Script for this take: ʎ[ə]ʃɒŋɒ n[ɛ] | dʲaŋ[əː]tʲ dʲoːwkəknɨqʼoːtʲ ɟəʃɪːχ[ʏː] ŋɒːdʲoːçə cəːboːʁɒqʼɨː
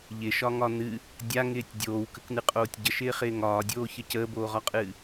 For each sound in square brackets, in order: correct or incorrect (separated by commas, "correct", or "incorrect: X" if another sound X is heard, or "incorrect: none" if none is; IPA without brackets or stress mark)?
incorrect: ɪ, incorrect: ɨ, incorrect: ɪː, incorrect: ɪː